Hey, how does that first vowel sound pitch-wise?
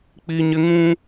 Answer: high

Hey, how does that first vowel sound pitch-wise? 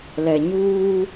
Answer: low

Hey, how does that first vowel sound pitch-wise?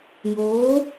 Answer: rising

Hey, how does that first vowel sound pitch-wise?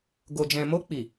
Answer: low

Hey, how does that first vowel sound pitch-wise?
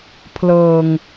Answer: low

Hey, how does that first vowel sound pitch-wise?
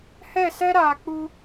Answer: falling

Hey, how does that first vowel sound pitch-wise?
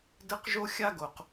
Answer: high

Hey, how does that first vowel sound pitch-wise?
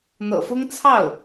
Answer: low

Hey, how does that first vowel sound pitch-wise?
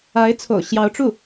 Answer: rising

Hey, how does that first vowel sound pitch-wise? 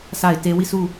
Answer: falling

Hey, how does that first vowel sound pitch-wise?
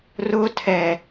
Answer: high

